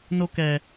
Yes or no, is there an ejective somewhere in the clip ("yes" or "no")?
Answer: no